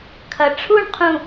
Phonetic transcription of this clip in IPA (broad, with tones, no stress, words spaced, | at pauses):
kʰɐ˩ʈ͡ʂʰu˥˨ɳqʰũ˧˩